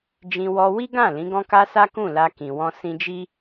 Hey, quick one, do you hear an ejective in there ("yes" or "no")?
no